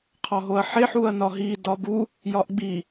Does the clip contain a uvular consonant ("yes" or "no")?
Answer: yes